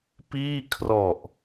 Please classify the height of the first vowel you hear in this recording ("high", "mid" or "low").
high